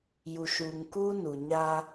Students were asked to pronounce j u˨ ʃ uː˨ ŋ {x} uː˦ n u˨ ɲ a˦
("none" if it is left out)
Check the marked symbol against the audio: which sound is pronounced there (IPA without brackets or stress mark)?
k